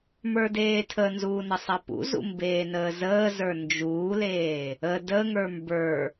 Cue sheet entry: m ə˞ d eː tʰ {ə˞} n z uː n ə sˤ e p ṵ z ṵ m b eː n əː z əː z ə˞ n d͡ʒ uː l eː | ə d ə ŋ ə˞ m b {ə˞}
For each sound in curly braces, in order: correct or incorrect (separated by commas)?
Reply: incorrect, correct